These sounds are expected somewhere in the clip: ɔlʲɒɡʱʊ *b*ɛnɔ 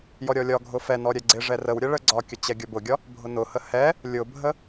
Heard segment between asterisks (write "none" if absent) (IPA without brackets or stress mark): f